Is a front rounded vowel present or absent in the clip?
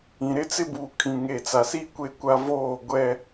absent